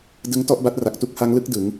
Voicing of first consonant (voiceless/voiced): voiced